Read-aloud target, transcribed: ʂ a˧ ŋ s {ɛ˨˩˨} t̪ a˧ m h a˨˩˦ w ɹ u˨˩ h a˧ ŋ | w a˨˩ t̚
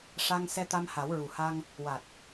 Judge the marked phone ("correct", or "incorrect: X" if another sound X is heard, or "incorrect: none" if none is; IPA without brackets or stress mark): incorrect: ɛ˧